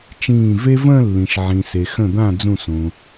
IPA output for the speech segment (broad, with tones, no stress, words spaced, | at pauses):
t͡ʃĩː˧˩ve˥ və̃ː˥˧lːĩ˩ʃ ʕĩ˩se˩xə̃˧˩d̪ã˧˩ d͡zũ˧˩sũ˩